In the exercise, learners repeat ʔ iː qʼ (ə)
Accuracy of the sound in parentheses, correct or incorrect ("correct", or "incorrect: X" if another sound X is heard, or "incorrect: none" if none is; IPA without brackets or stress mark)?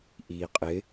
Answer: incorrect: ɪ